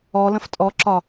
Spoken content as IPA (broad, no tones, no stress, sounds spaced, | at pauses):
ɔ l ə̃ f tʼ ɔ ǁ ɒ